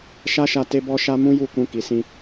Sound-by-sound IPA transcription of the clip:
ʃa˦ʃa˧ te˦bɔ˦ʃa˦ mũ˦ju˦˨kũ˧ ki˨sĩ˧

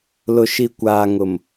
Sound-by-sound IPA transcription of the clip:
lʊ˨ʃi˨kʷaː˨ŋʊ˨m

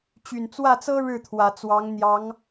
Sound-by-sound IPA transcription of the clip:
t͡ɕy˨˩nt͡swä˥˩t͡sɤ˥ ɻɻ̩˥˩t̪ʰwä˨˩ t͡swɑ˧˥ŋ n̪jɑ˧˥ŋ

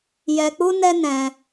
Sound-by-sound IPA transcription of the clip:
jɛ˧k͡pu˦nɛ˦ nɛ̃˧

